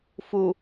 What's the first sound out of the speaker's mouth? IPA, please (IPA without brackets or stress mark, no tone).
f